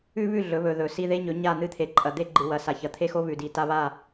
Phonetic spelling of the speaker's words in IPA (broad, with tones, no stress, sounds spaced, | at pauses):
ʉ˦ β ʉ˦˨ ɮ ɵ˨˦ β ɵ˨ ð ɵ˨ s i˦ ð e˦ ɲ ɵ˨˦ ɲ a˦˨ n̪ ɨ˦ t̪ʰ e˨ ǃʼ ɐ˨ d̪ e˦ ɡ͡ǃ ɨ˨ w ɐ˨ s a˨ ç ɐ˨ t̪ʰ e˦ x o˦ β ʉ˨ d i˨ t a˦ β a˦˨